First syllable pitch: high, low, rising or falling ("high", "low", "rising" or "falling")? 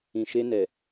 low